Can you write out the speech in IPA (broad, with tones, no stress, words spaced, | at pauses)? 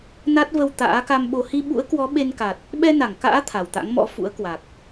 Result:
na˦˥t̚və˧w t̪a̰ː˧˥ka˧mɓo˧ hi˧ɓṵ˧˥ə̯kwɔ˨˦ ɓe˧nka˨˩t̚ | ɓɛ˧na˧˩ŋka̰ː˧˥ t̪ʰa˨˩wt̪a̰˧˥ŋmɔ̰˧˥ fṵ˧˥ə̯kwa˨˩k̚